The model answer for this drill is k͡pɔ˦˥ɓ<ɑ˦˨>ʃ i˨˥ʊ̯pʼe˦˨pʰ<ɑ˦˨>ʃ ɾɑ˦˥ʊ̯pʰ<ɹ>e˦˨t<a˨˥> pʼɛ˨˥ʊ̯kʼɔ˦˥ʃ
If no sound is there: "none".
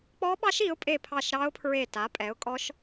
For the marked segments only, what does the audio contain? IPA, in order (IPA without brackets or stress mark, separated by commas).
ɑ˦˥, ɑ˦˨, ɹ, a˨˥